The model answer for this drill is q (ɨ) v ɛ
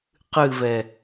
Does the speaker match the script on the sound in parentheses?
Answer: yes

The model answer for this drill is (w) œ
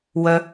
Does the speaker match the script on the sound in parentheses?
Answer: yes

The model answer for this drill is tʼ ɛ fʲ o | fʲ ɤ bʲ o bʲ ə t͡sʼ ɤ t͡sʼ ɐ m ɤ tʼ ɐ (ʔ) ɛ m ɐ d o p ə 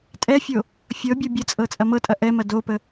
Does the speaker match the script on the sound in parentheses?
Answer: yes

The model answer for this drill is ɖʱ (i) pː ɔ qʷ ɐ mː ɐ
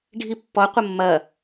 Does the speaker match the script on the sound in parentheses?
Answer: yes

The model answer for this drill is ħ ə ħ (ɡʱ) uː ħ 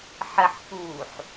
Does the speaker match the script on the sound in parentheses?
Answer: no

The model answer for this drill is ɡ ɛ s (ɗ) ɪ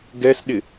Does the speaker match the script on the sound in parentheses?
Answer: yes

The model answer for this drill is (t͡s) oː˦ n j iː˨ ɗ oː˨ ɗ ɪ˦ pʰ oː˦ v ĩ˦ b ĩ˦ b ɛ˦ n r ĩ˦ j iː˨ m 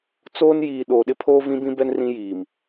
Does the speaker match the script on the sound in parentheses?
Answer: yes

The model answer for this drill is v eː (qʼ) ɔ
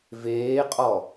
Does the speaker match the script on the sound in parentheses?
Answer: yes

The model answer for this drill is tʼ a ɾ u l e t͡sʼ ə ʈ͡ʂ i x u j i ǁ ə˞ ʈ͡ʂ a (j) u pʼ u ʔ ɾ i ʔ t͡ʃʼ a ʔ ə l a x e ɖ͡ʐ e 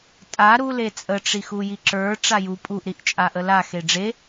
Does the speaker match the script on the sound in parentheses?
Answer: yes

